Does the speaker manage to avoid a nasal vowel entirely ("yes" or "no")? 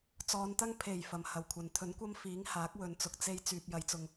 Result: yes